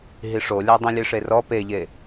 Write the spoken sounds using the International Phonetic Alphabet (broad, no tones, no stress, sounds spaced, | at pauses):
ɦ i ʂ o lʲ a dˤ ĩ lʲ e ʂ e r ɔ p e ʎ e